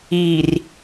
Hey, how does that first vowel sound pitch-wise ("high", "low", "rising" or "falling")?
low